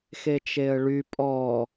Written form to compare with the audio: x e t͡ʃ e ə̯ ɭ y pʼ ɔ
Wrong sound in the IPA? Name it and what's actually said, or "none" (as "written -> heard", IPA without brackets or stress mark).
none